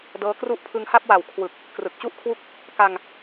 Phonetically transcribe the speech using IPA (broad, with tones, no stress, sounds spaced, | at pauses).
d ɤː˦˥ k r u˦˥ ʔ pʰ ɯ˧ ŋ h a˥˩ p̚ w a˨˩ w kʰ w ɯ˨˩ k̚ | k r ɯ˨˩ k̚ t͡ɕ u˥˩ ʔ kʰ w u˦˥ k̚ | k a˧ ŋ